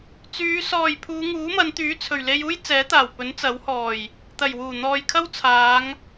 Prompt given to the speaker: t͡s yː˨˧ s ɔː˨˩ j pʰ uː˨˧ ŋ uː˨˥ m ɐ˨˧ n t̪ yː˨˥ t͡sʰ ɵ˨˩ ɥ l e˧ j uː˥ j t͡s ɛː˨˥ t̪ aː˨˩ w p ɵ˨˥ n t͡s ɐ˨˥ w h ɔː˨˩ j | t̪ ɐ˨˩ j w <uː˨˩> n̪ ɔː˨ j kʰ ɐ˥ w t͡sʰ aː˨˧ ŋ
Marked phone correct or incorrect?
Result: correct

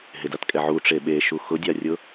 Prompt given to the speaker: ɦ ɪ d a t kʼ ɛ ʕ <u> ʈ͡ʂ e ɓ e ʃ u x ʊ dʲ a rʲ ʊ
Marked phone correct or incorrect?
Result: correct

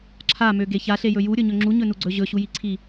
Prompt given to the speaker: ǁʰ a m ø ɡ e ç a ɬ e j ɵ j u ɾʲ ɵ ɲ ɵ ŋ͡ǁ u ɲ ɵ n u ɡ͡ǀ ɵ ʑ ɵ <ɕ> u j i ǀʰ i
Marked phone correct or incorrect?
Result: correct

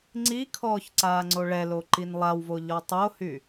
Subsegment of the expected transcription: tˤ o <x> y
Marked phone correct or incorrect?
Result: incorrect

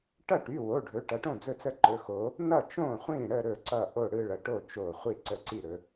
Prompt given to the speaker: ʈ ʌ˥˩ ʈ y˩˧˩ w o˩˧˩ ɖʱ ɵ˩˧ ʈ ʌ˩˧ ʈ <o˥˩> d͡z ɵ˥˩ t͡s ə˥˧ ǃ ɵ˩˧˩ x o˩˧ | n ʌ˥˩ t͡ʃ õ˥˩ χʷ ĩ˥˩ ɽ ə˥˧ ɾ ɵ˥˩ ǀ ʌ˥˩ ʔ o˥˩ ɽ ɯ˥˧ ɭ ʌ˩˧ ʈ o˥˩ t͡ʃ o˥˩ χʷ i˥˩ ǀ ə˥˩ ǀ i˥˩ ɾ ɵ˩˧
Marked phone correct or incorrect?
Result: incorrect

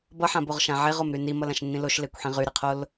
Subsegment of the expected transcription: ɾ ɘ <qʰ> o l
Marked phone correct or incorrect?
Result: correct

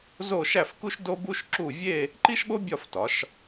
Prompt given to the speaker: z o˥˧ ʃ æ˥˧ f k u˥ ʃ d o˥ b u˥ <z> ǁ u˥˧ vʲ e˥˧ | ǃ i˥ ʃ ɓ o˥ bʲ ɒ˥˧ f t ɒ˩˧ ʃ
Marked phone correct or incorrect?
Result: incorrect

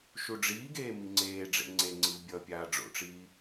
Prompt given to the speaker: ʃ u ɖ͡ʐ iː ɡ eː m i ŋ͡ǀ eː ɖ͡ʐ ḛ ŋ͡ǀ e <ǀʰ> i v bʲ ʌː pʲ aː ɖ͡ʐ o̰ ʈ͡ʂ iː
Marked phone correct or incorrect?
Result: incorrect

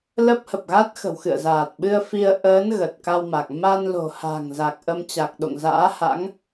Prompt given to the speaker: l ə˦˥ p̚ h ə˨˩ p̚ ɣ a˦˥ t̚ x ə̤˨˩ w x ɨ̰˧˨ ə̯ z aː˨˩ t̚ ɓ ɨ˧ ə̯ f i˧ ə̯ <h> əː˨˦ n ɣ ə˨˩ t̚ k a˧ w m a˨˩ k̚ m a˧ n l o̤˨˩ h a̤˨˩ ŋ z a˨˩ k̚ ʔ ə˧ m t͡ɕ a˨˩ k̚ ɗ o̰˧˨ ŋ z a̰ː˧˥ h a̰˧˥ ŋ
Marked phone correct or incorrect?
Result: incorrect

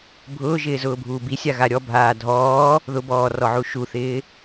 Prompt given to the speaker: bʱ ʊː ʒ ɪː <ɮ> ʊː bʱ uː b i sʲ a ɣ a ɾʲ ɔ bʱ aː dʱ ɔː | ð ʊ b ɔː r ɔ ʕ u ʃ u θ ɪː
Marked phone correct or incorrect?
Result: incorrect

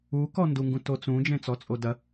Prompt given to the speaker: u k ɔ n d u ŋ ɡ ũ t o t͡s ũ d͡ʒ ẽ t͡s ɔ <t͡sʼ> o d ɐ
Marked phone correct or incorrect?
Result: correct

